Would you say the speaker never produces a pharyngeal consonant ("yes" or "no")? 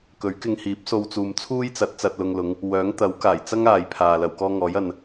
yes